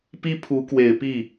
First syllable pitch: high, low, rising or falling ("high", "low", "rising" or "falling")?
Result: high